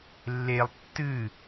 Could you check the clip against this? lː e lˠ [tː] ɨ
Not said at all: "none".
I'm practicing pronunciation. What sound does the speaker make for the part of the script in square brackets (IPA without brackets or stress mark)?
tː